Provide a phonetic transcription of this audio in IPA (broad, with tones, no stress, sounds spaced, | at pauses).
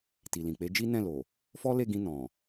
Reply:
t i˨ l ĩ˨ k͡p e˨˦ d͡ʒ i˦ n ɛ̃˦˨ l o˨ | f ɔ˦ l e˦˨ ɡ ĩ˧ n ɔ̃˨